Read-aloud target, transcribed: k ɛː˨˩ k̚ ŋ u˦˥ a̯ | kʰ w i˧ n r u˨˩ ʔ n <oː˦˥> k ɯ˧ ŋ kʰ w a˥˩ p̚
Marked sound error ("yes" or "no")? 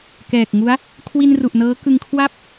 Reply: yes